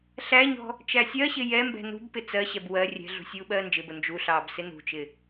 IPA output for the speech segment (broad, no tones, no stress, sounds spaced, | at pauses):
ɬ æ ɲ ɔ̤ | t͡ʃ æ sʲ ɜ ɕ ɪ j ɛ m b ɛ̤ n ṳ b p ɪ t͡s ɜ ɕ ɛ b w ɜ rʲ ɛ̤ ɮ ṳ sʲ uː ɓ ɜː n d͡ʒ ɪ b ʊ n d͡ʒ u ɬ ɑː b s ɪ n ṳ t͡ʃ ɪ